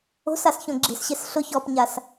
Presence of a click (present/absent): present